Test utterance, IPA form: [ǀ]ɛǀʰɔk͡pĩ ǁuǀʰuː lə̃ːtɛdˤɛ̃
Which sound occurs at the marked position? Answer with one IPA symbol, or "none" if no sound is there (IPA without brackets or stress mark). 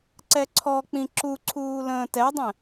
ǀ